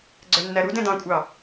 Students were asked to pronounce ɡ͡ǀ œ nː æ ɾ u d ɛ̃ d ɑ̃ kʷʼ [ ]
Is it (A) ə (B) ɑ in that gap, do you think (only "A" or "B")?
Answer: B